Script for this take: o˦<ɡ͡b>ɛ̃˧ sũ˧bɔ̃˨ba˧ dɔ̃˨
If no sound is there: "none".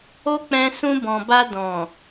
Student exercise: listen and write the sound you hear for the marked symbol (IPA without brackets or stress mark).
k͡p